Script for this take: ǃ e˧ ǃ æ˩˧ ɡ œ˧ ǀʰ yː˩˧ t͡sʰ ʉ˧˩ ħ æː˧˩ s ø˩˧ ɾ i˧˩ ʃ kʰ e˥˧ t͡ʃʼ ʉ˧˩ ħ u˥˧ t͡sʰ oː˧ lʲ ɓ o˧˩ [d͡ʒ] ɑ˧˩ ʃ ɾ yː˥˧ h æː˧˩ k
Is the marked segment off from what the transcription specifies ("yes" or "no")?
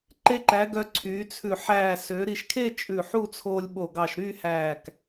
yes